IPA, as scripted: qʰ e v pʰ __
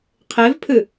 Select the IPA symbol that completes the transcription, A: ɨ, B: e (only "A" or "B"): A